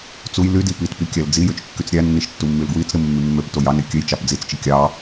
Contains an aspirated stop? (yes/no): no